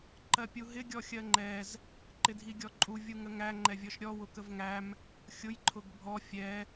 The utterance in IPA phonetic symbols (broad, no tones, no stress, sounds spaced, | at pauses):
ǃ ɜ pʲ u ɦ ɪ ɡʲ ɔ xʲ ɜ ŋ͡ǃ ɛ z | ǃ ɪ dʱ i ɡʲ ɔ ǃʼ u vʲ u ŋ ə ŋ æ ŋ͡ǃ ɛ vʲ ɔ ʃ ɾʲ ɔ w ʊ k ə v ŋ æ m | xʲ ʊ j ǃʰ ʊ ɡ bʱ ɔ fʲ ɛ